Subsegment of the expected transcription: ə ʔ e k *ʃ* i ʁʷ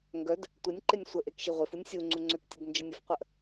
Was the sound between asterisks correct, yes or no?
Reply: yes